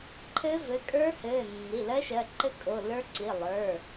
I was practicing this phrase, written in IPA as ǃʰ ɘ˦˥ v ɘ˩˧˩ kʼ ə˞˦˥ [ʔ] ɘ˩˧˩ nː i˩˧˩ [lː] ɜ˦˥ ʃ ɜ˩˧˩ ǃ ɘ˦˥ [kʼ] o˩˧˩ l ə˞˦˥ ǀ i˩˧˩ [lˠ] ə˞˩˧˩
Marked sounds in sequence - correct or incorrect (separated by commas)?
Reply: incorrect, incorrect, correct, correct